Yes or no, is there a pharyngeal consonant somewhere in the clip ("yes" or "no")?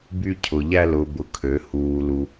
no